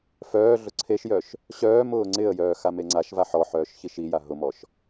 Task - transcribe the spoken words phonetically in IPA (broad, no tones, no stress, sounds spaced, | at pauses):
f œː ɮ ʊ ǀʰ e ʃ j œ ʃ | ɕ œː m ʊː ŋ͡ǀ ɪ ə̯ j œː x a m e ŋ͡ǀ a ʃ v a ħ ɔ ħ œː ʃ ç i ʃ i j a ɦ ʊ m ɔ ʃ